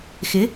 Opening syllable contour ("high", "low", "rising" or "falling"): rising